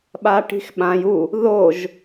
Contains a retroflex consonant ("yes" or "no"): yes